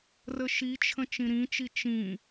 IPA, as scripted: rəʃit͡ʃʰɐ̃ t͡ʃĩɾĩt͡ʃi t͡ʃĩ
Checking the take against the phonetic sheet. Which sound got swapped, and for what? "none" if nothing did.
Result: ɐ̃ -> ə̃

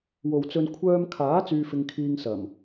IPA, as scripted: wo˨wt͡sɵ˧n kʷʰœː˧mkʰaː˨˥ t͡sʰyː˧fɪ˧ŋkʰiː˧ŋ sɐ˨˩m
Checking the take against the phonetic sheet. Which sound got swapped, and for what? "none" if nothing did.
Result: t͡sʰ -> t͡s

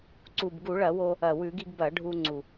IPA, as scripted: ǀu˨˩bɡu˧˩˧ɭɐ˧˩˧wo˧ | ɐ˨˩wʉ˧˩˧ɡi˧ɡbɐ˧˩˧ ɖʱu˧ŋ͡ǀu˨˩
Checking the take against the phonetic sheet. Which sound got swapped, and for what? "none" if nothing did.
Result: none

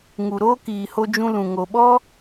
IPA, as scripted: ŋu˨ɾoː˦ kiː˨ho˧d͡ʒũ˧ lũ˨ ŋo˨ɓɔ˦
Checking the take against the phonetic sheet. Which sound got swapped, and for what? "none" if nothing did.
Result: none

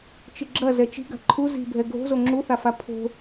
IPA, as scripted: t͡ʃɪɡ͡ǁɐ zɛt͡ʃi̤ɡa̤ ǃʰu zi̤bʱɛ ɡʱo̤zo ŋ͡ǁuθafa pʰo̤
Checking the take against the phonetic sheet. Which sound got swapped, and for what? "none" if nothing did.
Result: none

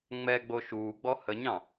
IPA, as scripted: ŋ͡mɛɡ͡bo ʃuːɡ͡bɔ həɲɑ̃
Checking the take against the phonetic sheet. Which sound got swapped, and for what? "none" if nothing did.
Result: none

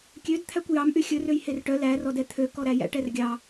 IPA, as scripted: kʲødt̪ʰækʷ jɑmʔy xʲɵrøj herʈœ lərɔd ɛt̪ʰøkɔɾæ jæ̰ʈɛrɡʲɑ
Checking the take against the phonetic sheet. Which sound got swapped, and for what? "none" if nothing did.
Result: ə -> æ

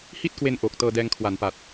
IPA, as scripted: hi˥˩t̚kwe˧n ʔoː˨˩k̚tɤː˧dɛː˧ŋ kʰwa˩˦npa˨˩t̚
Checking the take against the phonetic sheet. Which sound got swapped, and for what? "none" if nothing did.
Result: none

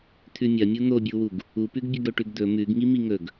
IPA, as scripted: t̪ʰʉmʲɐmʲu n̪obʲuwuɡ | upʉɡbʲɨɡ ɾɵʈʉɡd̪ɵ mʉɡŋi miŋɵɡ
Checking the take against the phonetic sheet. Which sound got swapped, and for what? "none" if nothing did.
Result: none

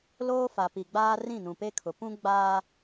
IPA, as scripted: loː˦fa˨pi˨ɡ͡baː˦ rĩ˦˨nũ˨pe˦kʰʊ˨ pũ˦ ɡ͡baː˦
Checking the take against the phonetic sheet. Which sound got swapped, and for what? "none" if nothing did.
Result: none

